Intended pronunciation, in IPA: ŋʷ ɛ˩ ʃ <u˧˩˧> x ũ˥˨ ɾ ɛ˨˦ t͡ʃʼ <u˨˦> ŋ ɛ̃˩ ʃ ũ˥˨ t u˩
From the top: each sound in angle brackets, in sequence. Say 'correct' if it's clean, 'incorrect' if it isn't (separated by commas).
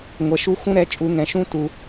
incorrect, incorrect